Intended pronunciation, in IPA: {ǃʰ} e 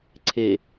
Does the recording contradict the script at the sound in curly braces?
yes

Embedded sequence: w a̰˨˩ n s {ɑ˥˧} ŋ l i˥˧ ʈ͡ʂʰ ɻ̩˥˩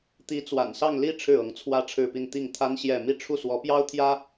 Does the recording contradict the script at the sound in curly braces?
no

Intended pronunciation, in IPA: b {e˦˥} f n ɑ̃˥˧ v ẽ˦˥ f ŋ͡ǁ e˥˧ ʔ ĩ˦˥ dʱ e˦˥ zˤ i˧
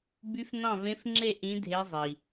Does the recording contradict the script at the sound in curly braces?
yes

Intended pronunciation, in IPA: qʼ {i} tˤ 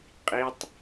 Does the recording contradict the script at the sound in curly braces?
no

